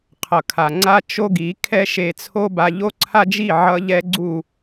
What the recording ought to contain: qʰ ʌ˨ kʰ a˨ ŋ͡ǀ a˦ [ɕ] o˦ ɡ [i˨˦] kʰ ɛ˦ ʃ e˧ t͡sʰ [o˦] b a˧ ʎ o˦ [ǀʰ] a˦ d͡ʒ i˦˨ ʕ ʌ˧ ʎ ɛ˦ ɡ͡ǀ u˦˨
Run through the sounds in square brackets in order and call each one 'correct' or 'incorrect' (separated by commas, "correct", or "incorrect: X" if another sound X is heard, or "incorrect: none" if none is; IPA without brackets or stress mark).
incorrect: t͡ʃ, correct, correct, correct